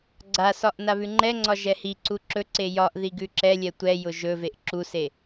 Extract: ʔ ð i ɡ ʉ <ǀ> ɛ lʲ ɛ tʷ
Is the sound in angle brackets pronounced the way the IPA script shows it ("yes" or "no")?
no